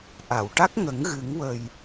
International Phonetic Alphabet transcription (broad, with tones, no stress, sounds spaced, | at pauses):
ʔ a˨˩˨ w ʈ a˦˥ k̚ ŋ ə˨˩˦ ŋ ɣ ɨ˨˩˦ ŋ w ə˨˩ j